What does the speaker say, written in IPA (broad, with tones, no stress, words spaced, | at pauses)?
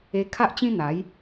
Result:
e˧ kʰa˦ʔt͡ɕĩ˦ n̪a˨˦j